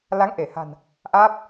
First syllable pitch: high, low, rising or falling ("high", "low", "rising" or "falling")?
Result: rising